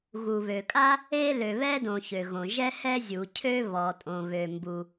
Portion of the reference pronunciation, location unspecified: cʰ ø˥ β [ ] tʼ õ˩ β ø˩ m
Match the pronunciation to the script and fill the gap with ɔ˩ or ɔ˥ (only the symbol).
ɔ˩